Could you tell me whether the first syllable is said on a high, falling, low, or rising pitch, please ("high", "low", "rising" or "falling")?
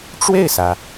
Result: falling